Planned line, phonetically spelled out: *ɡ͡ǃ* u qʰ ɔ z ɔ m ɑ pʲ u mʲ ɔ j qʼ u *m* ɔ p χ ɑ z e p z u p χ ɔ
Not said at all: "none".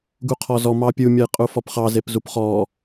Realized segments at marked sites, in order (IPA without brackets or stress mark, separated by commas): ɡ, f